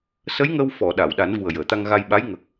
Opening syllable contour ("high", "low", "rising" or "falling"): rising